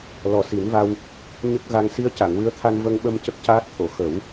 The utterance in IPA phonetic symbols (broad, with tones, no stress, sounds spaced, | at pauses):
l ɔ˨˩ s i˨˩˦ n v a˧ w | ɲ ə˦˥ k̚ ɣ a˧ ŋ s i˧ ə̯ c a˨˩˨ ŋ w ɨ˧˥ ə̯ t̪ʰ a˧ n v ə˧ ŋ ɓ ə˧ m c ə˦˥ k̚ c aː˦˥ t̚ t̪ʰ o˨˩˨ x ə˨˩˦ w